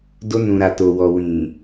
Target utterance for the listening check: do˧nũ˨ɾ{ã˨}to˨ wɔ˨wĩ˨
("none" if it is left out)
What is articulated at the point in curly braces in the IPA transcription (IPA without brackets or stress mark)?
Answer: a˨